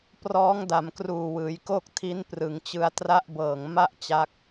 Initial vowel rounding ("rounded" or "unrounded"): rounded